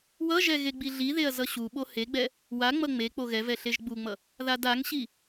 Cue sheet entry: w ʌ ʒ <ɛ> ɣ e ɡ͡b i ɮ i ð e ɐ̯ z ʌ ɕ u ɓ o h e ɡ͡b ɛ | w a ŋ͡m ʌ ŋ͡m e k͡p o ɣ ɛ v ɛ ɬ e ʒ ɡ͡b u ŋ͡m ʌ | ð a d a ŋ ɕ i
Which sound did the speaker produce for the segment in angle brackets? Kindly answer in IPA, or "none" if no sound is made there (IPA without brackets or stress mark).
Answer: ɛ